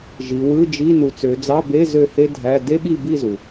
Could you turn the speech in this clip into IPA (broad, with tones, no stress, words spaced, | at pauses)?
ʒi˩˧wɯ˧˥˧d͡ʒi˧˥˧ nu˩˧t͡sø˩˧ d͡zɑ˧˥˧be˧˥˧ zø˥˨he˥dʱæ˧˥˧ de˥ɓi˥˨ bi˥˨zu˩